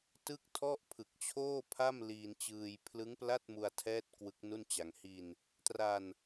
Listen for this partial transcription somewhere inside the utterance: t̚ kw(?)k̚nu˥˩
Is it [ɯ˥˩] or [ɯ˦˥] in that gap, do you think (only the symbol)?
ɯ˦˥